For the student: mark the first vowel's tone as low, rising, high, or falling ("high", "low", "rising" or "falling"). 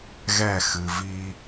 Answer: falling